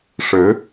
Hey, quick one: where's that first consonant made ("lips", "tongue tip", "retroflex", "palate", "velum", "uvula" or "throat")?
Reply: retroflex